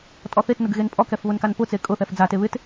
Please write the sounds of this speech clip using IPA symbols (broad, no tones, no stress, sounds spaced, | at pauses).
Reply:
tʼ ɔ θ e t n ʊ ɡ ɣ e n pʼ ɔ k ɛ f β ʊ n k a n p ʊ t͡s e kʼ ʊ θ ɛ f d͡z a t e β ɪ t